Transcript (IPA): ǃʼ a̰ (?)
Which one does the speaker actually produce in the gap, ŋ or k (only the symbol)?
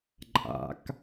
k